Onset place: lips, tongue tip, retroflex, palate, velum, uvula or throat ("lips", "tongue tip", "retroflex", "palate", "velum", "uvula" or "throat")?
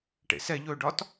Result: retroflex